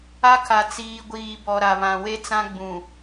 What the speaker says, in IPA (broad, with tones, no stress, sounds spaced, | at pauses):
a˦ kʰ a˨ t͡s iː˨ ɡʷ iː˨ b ɔ˨ ɾ a˨ β ã˨ w e˦ t͡s ã˦ ɡ͡b ũ˨